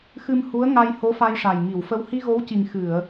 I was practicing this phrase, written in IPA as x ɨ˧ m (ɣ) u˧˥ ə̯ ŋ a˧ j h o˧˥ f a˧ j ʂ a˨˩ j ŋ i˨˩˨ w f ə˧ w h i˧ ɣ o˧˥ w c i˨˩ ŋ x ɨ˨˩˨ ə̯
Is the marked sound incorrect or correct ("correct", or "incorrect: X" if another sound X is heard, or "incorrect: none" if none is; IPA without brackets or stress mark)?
incorrect: h